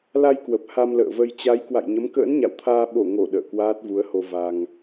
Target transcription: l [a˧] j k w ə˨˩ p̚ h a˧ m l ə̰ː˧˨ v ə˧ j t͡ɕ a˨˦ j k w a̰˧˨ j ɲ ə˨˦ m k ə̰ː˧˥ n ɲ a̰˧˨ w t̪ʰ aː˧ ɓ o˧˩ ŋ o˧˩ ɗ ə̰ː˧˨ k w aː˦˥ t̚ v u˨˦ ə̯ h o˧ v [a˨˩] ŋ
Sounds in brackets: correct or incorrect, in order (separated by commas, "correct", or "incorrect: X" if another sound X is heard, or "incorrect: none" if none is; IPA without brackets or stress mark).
correct, incorrect: a˧